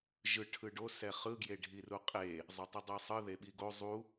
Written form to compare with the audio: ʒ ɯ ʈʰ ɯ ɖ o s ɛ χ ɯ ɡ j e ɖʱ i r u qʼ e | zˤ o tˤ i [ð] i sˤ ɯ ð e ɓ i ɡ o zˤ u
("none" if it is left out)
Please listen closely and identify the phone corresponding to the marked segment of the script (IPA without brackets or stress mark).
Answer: dˤ